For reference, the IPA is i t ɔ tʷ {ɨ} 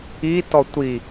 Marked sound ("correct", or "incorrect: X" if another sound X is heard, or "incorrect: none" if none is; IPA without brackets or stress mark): incorrect: i